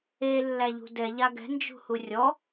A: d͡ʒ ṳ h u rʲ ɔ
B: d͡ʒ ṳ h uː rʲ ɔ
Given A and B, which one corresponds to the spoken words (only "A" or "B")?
A